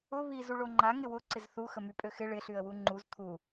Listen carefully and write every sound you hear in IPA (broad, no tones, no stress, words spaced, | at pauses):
ʊ βiz uɭoŋ͡ǃa ŋɪwʊ ǀɪzθu xəmypʼøxɪ ɭɪ ɬyə̯wuŋ͡ǃuz t̪ʰu